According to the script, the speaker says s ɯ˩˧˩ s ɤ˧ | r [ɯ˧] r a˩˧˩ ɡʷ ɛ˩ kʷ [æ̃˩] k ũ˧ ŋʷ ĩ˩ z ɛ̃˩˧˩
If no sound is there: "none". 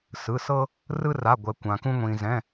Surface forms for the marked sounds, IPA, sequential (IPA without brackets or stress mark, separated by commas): ɯ˧, ã˩